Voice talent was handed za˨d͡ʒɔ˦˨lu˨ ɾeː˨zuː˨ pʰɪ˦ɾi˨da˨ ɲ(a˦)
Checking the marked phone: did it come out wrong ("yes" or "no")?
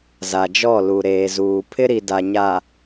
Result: yes